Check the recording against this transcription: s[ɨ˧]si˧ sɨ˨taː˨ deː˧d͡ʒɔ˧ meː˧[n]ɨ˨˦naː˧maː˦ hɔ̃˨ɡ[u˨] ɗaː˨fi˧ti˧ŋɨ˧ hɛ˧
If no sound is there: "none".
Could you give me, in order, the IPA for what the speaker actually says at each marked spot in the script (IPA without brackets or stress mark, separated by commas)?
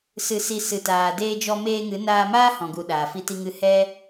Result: ɨ˧, ŋ, u˨